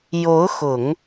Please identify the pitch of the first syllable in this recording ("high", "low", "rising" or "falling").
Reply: rising